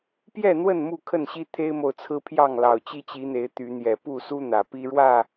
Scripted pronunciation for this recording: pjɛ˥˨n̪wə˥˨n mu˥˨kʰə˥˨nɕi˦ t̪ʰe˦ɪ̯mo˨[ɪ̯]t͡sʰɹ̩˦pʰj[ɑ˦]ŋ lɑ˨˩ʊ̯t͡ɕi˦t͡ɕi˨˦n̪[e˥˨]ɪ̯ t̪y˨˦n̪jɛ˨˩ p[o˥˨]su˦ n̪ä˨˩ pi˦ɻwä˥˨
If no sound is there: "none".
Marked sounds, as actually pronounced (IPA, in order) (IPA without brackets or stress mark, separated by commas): ʊ̯, ɑ˥˨, e˨˦, u˥˨